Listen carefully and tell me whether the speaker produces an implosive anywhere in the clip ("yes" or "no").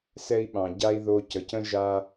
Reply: yes